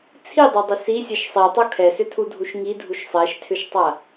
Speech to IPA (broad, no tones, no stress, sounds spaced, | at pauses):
t͡sʰ i dˤ o dˤ ʏ s i sʲ ɛ ʃ sˤ i tˤ o kʰ ɛ s ʏ tʰ u dʱ u ʃ ŋ i dʱ u ʃ sˤ ɛ ʃ tʰ ʏ ʃ tˤ a